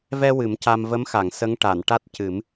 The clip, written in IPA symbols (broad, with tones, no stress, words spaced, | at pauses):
vɛ˧ wɨ˨˩˦mca˧m və˧˥mxa˨˩˨ŋ sə˧˥ŋʈa˨˩˨n ʈa˦˥t̚cɨ˨˩˦m